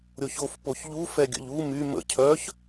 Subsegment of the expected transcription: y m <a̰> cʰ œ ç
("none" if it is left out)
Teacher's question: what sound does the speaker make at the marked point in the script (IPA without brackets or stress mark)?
ə̰